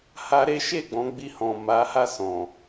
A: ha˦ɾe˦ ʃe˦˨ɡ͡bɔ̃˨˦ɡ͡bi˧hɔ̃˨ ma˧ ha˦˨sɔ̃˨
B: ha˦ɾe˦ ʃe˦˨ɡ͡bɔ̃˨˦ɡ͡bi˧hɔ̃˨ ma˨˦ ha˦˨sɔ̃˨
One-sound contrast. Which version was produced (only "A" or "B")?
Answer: B